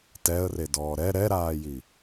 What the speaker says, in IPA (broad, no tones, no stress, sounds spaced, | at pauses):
t ɛ ə̯ r e d ɔː ɾ ɛ ɾ ɛ ɾ aː j i